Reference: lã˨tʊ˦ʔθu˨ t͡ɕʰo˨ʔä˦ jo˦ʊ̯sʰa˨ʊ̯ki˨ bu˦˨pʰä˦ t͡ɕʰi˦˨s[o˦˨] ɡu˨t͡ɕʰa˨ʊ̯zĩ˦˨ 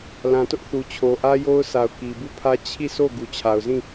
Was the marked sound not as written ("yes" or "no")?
no